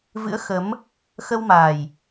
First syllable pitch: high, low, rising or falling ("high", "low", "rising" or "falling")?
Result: rising